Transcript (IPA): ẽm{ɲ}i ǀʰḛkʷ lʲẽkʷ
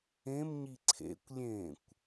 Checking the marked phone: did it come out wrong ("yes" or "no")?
no